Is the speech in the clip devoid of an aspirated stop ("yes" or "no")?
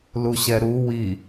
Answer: yes